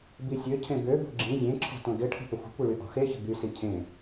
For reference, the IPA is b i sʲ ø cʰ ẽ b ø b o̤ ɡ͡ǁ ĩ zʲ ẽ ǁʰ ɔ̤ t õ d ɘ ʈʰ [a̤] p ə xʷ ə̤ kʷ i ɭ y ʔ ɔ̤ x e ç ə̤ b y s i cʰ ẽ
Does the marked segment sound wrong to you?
yes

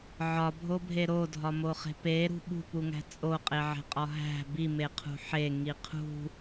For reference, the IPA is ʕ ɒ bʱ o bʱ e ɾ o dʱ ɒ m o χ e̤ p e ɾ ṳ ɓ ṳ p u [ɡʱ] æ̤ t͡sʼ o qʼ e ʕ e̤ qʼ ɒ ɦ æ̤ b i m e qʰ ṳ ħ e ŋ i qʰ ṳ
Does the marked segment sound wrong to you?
yes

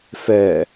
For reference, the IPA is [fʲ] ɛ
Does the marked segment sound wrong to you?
yes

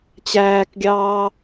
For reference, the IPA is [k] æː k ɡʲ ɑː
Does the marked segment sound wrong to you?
yes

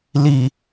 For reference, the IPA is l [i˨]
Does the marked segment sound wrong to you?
no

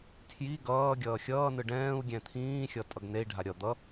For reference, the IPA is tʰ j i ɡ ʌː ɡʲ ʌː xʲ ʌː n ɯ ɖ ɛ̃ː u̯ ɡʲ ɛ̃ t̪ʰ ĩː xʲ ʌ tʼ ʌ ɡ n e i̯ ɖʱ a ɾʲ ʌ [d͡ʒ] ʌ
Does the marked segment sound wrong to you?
yes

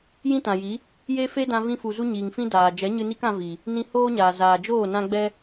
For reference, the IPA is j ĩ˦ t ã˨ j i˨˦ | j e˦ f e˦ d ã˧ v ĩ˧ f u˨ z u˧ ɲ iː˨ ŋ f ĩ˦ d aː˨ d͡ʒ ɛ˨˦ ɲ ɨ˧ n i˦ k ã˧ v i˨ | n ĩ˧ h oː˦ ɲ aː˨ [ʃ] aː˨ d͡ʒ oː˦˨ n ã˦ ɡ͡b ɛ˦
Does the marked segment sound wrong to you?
yes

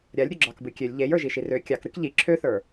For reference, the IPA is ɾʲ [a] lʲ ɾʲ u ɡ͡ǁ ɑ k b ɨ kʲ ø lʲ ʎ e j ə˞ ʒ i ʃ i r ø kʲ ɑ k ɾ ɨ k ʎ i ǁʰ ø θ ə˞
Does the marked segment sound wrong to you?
no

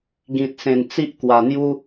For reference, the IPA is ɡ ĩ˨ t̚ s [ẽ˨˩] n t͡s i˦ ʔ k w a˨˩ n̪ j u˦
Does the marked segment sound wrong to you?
no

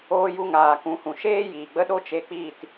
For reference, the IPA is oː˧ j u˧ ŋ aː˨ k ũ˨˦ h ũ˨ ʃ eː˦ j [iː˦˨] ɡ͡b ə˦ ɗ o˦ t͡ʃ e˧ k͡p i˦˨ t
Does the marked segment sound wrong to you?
yes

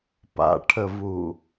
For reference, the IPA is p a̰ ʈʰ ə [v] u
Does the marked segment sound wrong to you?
no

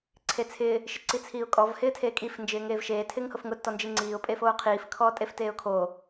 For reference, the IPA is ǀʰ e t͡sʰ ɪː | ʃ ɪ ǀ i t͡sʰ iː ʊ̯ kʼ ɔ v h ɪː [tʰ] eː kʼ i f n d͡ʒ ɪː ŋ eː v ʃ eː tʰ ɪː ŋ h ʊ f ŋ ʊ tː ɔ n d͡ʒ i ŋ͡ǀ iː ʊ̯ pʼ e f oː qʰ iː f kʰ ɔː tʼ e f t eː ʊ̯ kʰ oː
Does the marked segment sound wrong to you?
no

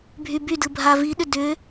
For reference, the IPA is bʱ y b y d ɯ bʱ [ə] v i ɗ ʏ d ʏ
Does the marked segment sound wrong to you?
yes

